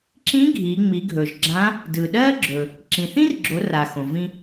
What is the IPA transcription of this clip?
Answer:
ǁ ĩ˧˥ ɡʱ i˩˧ ŋ͡m i˩˧ ɡʱ ɵ˩ ʒ ɡ͡ǁ ã˧˥ | d ɯ˩ ɗ ɜ˥ ɡ͡ǁ ɵ˩ | ǁ ĩ˩ θ ĩ˥ r ɡ͡ǁ o˩˧ r a˩ x õ˩ v ĩ˧

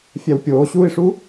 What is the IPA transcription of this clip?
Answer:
fʲ æ w pʲ oː ɕ uː i̯ ʂ u

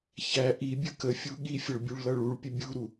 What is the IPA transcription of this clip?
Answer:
ç æ ʔ i bʲ ə k ə fʲ u ɠ i fʲ ʌ ɭ bʲ u ɭ l ʌ ɭ u ɭ pʲ ə bʲ u ɾ u

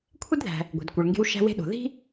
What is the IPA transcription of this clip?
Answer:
kʷʰ e˥ d ð æ̤˨ | ɡʷ e̤˨ d kʷ e˨ ɭ ŋ ɡ e̤˦ w ʃ æ̤˦ w e̤˦ ɗ o̤˨ ð i̤˥

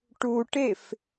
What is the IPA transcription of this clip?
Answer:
ʈ u ʈ e f

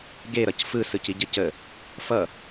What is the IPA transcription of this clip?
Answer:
ɡ e ɾ ʌ c f ɯ s ɯ c i ɟ ə c ə | f ʌ

